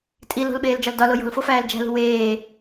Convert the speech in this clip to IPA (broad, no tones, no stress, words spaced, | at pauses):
tʼi lo̤lɓeːld͡ʒɒl dɒlo jo̤lfofæːl d͡ʒæ̤lṳ weː